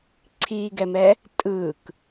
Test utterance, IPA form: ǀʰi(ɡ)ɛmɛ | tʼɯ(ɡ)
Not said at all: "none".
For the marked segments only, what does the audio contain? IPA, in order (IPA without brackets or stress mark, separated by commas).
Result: ɡ, k